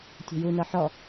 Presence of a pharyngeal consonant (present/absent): present